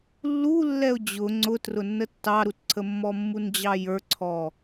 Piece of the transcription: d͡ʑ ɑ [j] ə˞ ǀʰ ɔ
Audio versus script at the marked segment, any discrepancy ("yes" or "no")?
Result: no